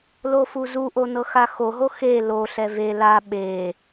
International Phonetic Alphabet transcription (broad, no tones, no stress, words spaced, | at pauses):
lofuzuʔo nɤxaxoɦo xe loɬɛ ve la ɓe